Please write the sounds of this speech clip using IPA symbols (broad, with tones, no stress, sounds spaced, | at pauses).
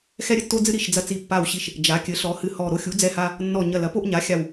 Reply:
x ɛ˦ ɾʲ ɘ˦ tː o˦ d͡z ɨ˦ ɾ i˧˩ ʃ d͡z ɐ˦ t͡s i˧˩ pː a˧˩ w ɕ i˧˩ ʃ | d͡ʒ a˩˥ kʲ ɘ˩˥ ɬ ɔ˩˥ h ɨ˧˩ h ɔ˧˩ ɾ o˦ xʲ u˩˥ d͡z ɛ˦ h a˦ | nː ɔ˧˩ ɲ ɐ˧˩ l ɐ˩˥ p o˦ ʔ ɲ a˩˥ xʲ a˧˩ w